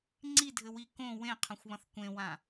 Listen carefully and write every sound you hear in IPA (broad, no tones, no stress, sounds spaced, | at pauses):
ŋ͡ǀ i dʱ ɘ w i k õ w ẽ qʰ ɐ̃ xʷ β ɐ̃ θ kʷ ẽ w ã